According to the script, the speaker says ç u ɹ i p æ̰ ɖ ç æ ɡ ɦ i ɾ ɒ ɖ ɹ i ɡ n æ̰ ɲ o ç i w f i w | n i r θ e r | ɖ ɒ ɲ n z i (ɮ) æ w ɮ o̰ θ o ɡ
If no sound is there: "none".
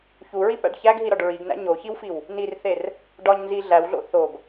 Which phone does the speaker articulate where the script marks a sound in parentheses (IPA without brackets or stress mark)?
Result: ɮ